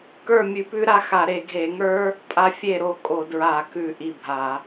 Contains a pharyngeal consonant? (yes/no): no